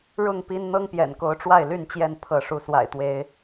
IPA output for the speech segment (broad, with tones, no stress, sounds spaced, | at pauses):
ɻ ʊ˥˨ ŋ p i˦ n n̪ ɤ˦ ŋ p j ɛ̰˨˩ n k o˨˦ ʊ̯ ʈ͡ʂ w a˥˨ ɪ̯ l y˥˨ n t͡ɕ j ɛ˥˨ n pʰ ɤ˨˦ ʂ u˨˦ s w a̰˨˩ ɪ̯ t̪ w e˨˦ ɪ̯